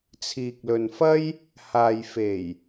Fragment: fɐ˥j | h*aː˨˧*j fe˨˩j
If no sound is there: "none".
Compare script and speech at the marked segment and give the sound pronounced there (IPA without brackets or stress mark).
aː˨